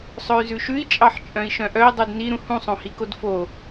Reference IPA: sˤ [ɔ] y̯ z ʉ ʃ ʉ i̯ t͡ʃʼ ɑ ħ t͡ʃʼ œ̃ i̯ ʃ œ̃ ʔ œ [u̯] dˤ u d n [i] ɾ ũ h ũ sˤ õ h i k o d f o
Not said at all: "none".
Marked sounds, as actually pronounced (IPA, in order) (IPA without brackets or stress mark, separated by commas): ɵ, i̯, i